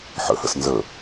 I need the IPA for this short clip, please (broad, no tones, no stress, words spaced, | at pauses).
ħə̰hə̰s nzə